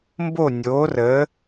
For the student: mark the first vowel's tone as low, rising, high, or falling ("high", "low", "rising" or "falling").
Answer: falling